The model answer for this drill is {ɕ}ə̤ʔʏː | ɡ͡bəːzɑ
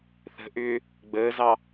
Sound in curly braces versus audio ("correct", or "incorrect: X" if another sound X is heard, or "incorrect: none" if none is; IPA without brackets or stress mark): incorrect: θ